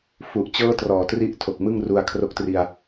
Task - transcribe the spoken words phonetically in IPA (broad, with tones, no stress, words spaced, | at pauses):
fu˨˩ʔt͡ɕɤː˥˩trɔː˨˩ tri˥˩ʔtʰo˨˩k̚mɯ˥˩ŋru˧a̯ kʰro˦˥k̚tri˧a̯